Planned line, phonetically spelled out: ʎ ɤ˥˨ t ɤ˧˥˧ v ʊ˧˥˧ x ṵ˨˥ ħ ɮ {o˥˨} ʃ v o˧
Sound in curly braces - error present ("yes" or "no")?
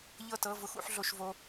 yes